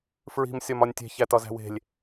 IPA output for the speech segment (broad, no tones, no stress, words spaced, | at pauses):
fɹi̤m sʲɒmɒnʲtʲe̤ çætɒzæ̤we̤lʲ